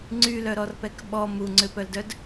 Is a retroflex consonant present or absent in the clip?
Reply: absent